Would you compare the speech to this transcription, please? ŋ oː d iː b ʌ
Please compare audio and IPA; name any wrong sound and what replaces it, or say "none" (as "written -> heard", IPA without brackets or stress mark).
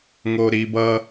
d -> ɾ